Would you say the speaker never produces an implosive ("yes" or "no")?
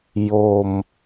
yes